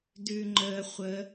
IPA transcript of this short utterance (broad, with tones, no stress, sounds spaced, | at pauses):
d ʉ˨ ŋ͡ǃ əː˨ χʷ ə˨˦